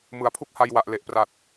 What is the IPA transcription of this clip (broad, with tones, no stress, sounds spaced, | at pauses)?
m ɯ˩˦ a̯ pʰ u˦˥ k̚ h a˧ j w a˨˩ ʔ l e˨˩ ʔ p r a˨˩ t̚